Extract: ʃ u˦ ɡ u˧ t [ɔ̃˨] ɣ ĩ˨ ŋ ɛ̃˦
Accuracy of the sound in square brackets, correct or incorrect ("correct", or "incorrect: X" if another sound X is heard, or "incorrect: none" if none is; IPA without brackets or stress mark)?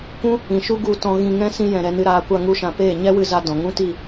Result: incorrect: ɔ̃˧